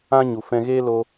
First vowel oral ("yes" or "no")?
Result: no